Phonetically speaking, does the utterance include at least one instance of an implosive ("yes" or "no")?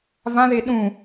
yes